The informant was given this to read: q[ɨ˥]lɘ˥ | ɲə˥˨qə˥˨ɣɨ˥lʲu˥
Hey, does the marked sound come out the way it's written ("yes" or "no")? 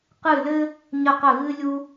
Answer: no